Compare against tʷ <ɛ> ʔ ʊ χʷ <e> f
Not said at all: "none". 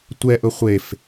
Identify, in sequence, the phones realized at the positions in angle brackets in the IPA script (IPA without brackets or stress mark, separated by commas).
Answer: ɛ, e